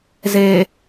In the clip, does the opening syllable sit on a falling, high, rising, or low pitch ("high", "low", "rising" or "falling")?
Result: low